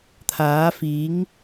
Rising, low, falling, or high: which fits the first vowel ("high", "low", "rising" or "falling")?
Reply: rising